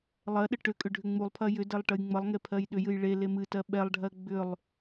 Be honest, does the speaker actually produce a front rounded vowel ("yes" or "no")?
yes